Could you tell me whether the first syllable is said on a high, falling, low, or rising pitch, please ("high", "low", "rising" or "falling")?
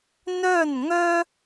falling